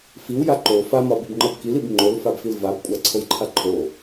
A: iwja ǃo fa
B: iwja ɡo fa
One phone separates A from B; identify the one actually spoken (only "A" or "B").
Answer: A